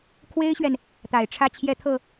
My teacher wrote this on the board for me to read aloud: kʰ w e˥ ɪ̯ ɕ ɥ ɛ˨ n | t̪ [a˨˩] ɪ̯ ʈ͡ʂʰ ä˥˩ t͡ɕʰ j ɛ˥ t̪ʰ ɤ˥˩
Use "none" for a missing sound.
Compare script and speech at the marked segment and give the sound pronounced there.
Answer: a˨˩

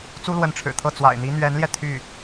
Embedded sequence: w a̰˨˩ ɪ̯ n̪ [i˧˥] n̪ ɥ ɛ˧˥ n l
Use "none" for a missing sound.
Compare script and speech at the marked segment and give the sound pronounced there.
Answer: i˧˥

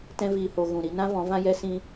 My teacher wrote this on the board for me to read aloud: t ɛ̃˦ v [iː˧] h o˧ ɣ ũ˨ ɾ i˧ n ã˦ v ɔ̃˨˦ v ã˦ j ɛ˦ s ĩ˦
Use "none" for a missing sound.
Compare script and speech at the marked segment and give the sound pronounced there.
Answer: iː˧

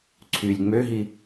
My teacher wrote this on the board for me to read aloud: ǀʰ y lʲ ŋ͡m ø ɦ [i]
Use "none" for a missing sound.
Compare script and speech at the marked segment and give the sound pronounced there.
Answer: i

